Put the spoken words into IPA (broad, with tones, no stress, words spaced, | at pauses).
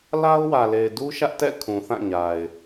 la˦ʊ̯wä˨le˨ɪ̯du˦ ʃä˦ʔtɛ̰˦˨ kʰũ˨θã˦˨ɲa˨ɪ̯